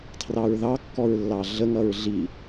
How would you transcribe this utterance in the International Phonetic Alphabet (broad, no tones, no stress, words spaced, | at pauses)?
tʰrɑɹðɑkːɔɹ lːɑɮəŋʌɹ ɮi